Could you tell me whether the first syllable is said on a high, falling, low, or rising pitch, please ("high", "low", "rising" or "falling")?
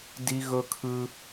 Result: high